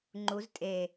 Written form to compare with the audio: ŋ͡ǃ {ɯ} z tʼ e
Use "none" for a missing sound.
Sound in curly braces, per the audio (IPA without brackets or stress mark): u